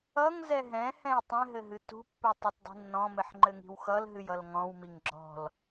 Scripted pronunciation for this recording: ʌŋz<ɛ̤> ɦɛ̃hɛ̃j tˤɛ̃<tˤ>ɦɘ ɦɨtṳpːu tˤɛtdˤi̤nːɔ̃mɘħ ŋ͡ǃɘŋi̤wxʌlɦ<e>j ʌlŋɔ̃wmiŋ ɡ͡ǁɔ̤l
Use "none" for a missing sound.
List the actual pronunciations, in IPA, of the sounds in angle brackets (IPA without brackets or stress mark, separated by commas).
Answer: ɛ, none, ɨ